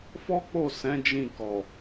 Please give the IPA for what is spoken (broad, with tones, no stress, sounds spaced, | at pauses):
f ɔ˦ k͡p o˦˨ s ɛ̃˨˦ d͡ʒ ĩ˦˨ k ɔ˨